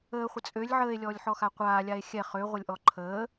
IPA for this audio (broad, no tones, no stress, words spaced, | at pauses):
əːχʷə t͡sʼølʲ ʕəːe̯lʲɔːlʲħɔxa qʷaːlʲae̯ xʲɛ χøʁʷəlʲʔɔ ǃʰəː